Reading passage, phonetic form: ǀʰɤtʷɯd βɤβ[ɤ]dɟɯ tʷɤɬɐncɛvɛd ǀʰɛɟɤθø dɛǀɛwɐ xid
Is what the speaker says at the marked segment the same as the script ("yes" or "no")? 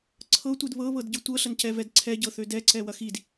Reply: yes